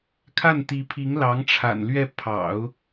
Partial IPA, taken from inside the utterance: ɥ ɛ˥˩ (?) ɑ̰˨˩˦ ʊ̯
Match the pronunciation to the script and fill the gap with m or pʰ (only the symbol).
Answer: pʰ